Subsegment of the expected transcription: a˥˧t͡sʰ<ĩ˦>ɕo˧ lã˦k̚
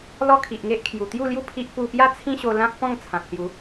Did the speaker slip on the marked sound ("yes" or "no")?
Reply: no